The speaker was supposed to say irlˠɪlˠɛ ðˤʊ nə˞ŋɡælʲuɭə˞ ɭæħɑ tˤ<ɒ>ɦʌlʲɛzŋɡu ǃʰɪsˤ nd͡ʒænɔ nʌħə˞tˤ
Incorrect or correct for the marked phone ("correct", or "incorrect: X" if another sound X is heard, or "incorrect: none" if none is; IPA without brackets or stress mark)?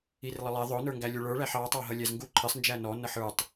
incorrect: ɑ